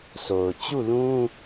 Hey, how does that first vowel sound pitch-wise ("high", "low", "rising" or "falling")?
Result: low